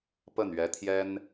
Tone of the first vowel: falling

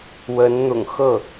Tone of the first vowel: rising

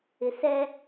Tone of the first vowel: low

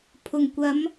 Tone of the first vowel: low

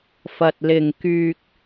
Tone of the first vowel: low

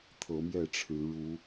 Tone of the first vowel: rising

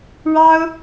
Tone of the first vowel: high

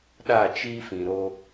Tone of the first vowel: falling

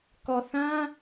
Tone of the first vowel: low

